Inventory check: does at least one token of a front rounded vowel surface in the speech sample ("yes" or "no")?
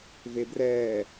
no